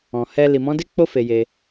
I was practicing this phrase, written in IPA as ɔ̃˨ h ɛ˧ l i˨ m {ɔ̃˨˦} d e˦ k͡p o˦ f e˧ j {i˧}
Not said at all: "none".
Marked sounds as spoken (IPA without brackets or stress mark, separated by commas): ɔ̃˨˦, e˧